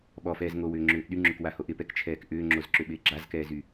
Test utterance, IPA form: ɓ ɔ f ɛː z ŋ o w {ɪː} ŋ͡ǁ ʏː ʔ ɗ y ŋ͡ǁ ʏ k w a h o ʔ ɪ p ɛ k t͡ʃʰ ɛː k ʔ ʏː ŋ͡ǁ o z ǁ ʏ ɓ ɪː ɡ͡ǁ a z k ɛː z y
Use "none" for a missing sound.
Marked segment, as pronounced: ʏː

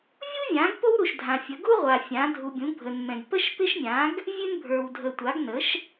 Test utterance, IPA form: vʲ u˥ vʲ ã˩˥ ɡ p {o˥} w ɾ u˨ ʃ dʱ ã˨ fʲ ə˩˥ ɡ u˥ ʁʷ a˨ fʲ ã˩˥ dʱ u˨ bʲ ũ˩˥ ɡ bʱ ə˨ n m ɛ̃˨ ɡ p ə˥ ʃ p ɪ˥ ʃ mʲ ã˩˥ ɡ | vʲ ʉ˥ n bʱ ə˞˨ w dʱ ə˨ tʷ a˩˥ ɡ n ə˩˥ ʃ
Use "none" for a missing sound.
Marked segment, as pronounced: o˥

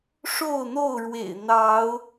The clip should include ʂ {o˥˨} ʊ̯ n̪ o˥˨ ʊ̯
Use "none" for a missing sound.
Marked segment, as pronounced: o˥˨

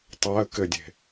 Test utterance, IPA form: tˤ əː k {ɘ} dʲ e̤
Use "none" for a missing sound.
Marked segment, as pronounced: ɘ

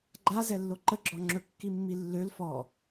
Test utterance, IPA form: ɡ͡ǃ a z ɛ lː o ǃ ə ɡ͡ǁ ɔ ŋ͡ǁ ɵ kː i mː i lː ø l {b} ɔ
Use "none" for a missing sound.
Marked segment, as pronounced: f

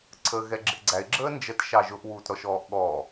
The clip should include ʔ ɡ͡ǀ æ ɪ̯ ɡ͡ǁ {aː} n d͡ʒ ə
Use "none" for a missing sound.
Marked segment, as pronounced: əː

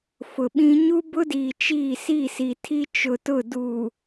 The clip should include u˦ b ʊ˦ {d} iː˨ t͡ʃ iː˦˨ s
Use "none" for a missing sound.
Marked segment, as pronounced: d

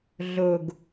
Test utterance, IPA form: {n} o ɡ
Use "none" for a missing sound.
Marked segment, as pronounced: ɮ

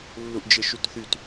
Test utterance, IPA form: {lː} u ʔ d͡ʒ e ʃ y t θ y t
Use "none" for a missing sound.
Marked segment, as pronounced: lː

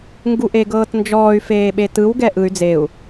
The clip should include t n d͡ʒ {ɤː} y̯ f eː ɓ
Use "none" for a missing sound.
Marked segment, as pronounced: ɔː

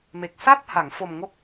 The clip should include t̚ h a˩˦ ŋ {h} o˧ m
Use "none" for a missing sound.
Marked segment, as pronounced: f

